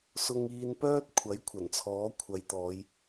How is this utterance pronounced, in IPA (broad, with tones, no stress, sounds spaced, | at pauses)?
s ʊ˨ ŋ iː˨ n p œː˧ t̚ kʷʰ ɐ˨˥ j kʷʰ ɐ˨˩ n t͡sʰ ɔː˨˥ kʷʰ ɐ˨˧ j t̪ ɔː˨˧ j